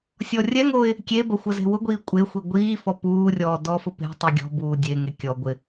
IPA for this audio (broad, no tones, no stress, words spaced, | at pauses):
sʲɔrʲɛŋoːɪ̯ | kʲebɐ xʷəze̤wʊɡʷiː kʷʼexʷi ɡʷiːfɔ puːrʲɔː dɔfʊpe̤tˤi ɡʲɔ̤buː dʲeŋe kʲɔ ɡʷɪ